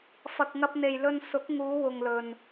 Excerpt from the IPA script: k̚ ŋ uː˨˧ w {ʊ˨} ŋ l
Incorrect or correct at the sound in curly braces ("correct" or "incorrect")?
correct